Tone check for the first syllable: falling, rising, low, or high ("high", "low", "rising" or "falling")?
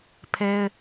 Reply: high